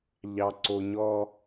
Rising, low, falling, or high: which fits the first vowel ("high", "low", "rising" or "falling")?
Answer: low